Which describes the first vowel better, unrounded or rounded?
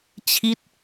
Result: unrounded